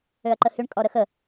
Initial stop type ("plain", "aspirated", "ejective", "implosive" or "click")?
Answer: click